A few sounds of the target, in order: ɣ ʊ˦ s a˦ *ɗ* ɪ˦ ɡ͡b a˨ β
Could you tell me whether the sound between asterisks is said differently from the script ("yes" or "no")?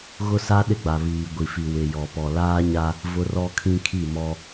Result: no